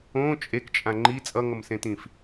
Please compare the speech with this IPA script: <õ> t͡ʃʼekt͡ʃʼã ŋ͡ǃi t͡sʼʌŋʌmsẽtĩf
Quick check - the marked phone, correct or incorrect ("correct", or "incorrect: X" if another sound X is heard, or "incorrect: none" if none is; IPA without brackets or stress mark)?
correct